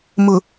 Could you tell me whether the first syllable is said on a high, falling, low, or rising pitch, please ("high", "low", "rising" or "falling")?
low